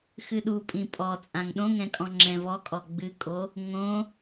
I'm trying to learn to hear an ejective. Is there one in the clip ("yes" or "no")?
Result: yes